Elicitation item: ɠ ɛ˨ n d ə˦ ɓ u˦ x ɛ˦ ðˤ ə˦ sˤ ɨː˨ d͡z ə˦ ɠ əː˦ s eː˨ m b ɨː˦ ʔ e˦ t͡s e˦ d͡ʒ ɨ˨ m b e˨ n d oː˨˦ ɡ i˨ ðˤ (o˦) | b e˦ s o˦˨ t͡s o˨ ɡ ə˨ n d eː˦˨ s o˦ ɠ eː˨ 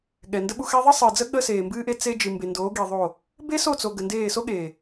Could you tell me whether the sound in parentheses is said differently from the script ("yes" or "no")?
yes